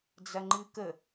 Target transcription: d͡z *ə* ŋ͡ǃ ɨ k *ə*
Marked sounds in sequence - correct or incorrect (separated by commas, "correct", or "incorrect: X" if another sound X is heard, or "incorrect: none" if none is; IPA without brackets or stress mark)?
incorrect: ɐ, correct